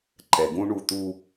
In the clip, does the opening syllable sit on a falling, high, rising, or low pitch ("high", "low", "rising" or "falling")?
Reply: low